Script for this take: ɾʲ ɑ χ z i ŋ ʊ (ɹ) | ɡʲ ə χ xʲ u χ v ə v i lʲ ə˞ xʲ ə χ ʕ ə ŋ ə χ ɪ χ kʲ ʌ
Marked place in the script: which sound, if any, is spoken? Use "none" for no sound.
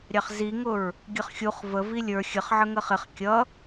ɹ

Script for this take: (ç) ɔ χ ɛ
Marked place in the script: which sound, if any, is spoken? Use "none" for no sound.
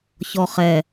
ç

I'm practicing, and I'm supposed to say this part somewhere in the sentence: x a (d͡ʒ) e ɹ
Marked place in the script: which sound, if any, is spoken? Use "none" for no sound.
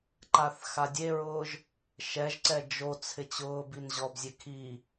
dʲ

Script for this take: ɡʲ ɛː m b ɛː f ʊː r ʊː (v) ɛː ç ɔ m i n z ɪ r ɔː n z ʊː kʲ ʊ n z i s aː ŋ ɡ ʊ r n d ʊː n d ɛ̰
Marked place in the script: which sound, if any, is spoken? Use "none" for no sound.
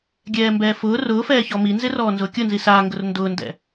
f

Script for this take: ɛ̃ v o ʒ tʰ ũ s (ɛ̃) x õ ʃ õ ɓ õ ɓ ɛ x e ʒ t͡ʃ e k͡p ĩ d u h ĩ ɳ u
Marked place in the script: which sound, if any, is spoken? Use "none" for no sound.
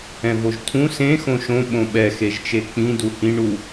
ẽ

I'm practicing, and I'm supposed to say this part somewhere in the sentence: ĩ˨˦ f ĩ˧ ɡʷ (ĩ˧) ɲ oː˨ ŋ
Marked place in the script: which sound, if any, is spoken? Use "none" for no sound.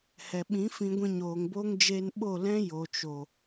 ĩ˧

